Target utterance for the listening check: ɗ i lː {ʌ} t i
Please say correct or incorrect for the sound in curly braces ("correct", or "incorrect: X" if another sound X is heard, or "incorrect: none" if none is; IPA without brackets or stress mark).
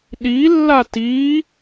incorrect: a